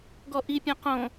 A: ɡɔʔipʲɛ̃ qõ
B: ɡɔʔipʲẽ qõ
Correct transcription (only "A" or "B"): A